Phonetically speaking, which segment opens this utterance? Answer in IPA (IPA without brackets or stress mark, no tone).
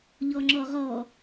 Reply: ʎ